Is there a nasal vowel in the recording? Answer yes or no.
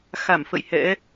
no